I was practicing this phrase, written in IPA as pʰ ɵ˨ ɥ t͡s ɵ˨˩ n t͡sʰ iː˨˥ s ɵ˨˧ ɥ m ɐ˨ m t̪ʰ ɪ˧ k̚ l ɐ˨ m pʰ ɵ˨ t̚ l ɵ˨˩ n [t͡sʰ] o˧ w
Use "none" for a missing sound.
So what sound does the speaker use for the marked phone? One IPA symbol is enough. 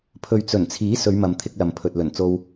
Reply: t͡s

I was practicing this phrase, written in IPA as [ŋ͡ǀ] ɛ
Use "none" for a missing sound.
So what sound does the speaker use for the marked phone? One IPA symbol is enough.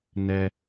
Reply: n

